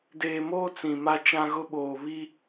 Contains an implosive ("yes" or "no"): yes